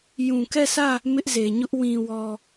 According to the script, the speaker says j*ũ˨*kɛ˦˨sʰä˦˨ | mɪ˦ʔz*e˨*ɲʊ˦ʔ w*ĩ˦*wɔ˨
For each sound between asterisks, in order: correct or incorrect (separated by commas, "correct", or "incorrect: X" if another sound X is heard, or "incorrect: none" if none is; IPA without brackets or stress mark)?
correct, correct, incorrect: ĩ˨